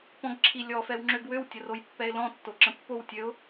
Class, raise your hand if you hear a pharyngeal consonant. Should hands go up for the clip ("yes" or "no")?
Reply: no